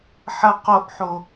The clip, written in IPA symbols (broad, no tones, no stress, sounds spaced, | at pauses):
ħ ɐ q o ʔ ħ o